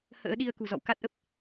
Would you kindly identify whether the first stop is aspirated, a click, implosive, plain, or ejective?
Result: implosive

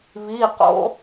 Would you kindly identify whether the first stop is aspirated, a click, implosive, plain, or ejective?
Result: plain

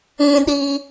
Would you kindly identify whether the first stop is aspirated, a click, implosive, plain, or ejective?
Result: implosive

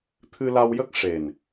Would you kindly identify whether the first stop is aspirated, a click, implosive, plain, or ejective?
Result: aspirated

